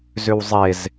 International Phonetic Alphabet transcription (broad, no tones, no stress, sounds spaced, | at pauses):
z ʏ w zˤ e z